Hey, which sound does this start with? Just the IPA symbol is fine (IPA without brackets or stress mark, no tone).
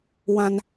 w